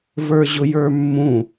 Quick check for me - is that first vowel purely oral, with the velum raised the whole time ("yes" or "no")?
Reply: yes